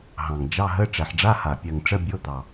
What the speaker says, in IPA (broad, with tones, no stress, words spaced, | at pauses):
ɦɑ̃˨˩ŋd͡ʒɑ˧˥˧ɦə˧˥˧ ʈ͡ʂɛ˨˩ħɖ͡ʐa˧˥˧ha˨˩ pʲɜ˨˩ŋʈ͡ʂə˧˥˧bʲo˧˥˧ d̪ɑ˨˩